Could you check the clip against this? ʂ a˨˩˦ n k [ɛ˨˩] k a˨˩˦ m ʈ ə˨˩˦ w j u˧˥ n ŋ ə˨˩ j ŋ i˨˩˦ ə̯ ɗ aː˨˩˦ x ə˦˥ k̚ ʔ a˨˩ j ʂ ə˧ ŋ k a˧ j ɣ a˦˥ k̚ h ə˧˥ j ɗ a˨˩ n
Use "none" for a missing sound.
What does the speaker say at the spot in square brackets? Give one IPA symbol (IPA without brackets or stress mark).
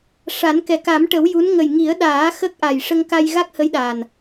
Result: ɛ˨˩